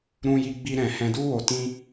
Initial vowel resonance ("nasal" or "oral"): nasal